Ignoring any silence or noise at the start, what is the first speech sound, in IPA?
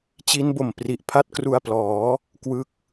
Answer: t͡ɕ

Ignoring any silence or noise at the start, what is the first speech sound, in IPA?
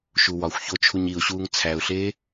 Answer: ʃ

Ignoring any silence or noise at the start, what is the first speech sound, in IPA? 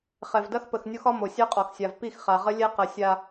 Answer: χ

